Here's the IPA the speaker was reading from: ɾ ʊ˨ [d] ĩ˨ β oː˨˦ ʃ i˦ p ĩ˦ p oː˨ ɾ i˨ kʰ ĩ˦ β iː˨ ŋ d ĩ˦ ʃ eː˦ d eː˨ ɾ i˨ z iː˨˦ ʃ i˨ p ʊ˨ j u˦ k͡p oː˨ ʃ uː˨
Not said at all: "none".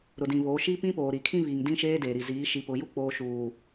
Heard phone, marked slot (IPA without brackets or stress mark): d